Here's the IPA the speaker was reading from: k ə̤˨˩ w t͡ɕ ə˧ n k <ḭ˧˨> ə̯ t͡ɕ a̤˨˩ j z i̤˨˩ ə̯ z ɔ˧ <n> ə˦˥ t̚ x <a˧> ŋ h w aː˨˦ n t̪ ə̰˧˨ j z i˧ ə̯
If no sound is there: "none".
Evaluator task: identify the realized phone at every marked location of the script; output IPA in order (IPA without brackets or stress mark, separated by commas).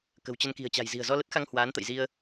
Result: i̤˨˩, l, a˧